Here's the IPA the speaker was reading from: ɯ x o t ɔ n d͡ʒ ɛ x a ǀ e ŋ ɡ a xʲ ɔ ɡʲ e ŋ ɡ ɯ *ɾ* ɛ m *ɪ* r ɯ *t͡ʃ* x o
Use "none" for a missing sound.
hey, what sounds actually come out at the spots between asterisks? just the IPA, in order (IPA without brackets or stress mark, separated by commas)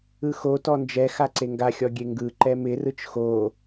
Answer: ǃ, ɪ, t͡ʃ